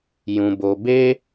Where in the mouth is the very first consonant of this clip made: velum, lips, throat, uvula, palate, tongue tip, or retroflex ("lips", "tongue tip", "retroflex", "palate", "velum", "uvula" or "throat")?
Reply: palate